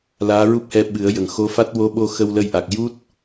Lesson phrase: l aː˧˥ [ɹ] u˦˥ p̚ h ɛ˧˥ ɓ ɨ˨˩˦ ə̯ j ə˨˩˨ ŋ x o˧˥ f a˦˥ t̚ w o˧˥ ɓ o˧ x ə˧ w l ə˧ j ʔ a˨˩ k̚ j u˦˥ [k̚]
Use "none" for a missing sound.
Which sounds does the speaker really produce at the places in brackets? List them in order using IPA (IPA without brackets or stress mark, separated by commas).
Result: ɹ, t̚